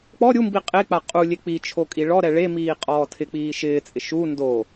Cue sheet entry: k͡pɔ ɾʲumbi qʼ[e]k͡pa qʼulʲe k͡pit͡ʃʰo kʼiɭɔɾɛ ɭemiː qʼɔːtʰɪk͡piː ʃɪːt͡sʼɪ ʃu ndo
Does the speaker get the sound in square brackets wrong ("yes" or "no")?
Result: no